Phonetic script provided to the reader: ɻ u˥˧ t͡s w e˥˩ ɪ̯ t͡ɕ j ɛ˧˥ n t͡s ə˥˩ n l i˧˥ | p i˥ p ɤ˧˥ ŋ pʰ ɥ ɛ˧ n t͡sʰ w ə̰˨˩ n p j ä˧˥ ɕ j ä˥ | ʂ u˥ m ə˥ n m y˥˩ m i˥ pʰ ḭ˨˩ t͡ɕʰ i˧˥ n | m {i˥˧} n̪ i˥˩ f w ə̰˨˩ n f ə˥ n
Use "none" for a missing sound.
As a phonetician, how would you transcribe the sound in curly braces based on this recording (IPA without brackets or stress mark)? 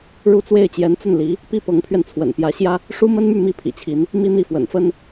i˥˧